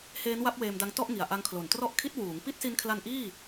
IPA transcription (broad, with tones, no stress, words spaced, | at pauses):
heː˦˥nwa˦˥p̚ weː˧mda˧ŋ tɔ˥˩ʔ ŋi˨˩a̯ʔa˦˥ŋkʰlo˨˩n trɔ˦˥ʔkʰi˦˥t̚ wuː˩˦ŋ pi˦˥t̚si˧nkʰla˧n ʔiː˥˩